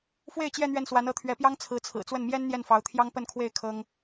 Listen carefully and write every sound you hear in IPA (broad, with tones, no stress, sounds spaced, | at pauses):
f w e˥˧ ɪ̯ t͡ɕ j ɛ˥˧ n̪ ɥ ɛ˥˩ n s w a˧˥ n ɤ˧˥ t̪ʰ ɥ ɛ˧˥ p j ɑ˥ ŋ t͡sʰ ɹ̩˧˥ t͡sʰ ɹ̩˨˩ t͡s w ə˥˩ n m j ɛ˥ n n̪ j ɛ˥˩ n f ɑ˧˥ ʊ̯ t̪ʰ j ɑ˥ ŋ p ə˥˧ n kʰ w e˥˩ ɪ̯ kʰ ɤ˥ ŋ